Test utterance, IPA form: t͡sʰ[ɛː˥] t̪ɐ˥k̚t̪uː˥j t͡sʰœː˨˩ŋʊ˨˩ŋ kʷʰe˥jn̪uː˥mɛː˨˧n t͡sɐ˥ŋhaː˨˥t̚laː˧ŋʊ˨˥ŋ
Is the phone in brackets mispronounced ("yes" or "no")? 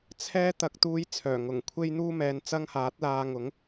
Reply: no